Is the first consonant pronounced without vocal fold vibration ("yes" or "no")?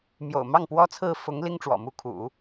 no